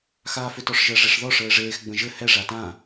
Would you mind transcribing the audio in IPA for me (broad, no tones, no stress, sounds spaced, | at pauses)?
x aː f ʏ t ɔ ʂ ʒ ə ʐ e ʂ ð ɔ ʂ ɘː ʐ eː x ɡ͡b ə̃ ʒ ɘ h ɛ ʐ a t ã